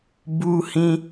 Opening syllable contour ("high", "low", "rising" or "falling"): high